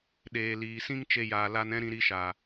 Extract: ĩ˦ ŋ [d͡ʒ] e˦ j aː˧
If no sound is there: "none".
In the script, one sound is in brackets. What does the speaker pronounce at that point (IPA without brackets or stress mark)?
t͡ʃ